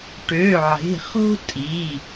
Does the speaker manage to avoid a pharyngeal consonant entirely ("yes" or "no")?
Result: no